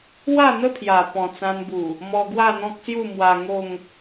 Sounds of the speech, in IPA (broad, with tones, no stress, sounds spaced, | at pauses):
w a˥˧ n̪ ə˥˧ pʰ j a˨˩ p ɔ̃˨˩ t͡s ã˧ n b u˨˩ | m ɔ˧ ɡ w a˥˧ n̪ ɔ̃˦ k̚ s j u˥˧ m w a˧ ŋ o˥˧ ŋ